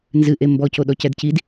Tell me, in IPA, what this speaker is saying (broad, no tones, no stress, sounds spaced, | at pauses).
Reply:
n z ɨ ʔ e m b ɔ c o ɗ ɔ c ɛ d c i d